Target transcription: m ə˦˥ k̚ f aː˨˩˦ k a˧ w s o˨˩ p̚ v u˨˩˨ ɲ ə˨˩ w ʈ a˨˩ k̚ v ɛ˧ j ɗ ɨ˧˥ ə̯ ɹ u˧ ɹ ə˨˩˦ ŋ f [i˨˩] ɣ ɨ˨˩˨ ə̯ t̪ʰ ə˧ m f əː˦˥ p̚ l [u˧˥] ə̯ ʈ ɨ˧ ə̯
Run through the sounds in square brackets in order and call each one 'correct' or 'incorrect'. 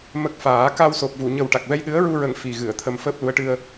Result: correct, correct

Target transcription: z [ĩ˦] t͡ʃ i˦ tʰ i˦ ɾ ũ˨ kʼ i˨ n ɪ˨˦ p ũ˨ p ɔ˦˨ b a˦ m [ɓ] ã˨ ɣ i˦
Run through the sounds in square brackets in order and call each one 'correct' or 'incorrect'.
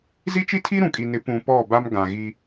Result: incorrect: i˦, incorrect: ɡ

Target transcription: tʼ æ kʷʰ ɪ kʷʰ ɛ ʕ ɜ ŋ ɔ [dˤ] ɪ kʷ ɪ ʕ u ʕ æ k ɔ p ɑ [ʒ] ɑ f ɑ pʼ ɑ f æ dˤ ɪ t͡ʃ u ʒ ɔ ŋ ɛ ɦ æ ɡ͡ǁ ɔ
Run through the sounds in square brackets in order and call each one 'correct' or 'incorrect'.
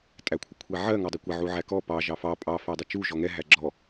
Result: correct, correct

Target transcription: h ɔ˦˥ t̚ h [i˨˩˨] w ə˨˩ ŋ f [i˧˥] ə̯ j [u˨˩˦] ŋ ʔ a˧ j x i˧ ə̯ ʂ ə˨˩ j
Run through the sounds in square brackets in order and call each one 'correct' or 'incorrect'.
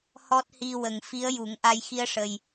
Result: incorrect: i˧, correct, correct

